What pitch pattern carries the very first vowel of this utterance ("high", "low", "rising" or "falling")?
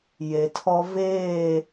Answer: low